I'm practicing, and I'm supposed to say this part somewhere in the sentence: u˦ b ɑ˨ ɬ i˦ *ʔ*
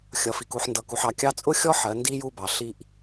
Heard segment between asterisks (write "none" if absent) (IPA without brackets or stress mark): ʔ